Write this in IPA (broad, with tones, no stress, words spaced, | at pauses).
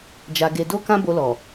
d͡ʒa˧ɡe˧do˦ kã˦bo˧lɔ˨